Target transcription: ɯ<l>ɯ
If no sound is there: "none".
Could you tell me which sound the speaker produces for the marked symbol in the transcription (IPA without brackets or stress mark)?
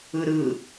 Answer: ɾ